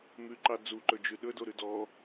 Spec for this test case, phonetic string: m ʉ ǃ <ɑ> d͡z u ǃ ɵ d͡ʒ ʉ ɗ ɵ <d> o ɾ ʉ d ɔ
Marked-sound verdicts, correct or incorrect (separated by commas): correct, correct